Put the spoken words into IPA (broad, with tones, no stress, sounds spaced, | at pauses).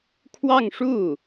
kʰ w ɑ˥˧ ŋ ʂ u˥˩